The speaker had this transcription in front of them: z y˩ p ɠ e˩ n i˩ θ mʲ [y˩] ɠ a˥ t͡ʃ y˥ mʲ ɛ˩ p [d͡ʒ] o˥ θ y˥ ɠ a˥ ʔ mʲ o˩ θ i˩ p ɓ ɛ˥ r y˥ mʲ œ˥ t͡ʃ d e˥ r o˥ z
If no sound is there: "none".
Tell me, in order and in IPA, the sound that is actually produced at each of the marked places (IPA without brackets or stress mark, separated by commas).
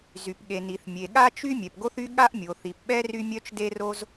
e˩, ɡ